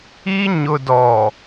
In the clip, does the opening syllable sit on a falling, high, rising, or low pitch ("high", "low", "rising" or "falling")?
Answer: high